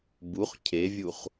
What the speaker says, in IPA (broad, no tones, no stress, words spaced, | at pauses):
buχ cʰevʲuχ